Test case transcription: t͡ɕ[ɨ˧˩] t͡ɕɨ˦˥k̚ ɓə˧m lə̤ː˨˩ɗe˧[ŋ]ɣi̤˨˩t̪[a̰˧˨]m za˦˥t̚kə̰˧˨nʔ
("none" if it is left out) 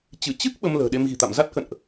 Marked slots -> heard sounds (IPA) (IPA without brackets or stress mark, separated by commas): ɨ˧˩, m, a̰˧˨